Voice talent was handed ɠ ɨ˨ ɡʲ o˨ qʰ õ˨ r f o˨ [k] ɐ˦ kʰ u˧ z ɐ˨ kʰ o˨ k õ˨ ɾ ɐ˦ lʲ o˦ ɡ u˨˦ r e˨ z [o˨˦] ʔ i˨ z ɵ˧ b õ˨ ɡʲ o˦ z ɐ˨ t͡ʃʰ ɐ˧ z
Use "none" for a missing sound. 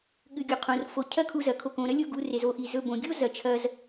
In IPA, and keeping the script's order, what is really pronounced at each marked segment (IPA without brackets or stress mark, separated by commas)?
cʰ, o˧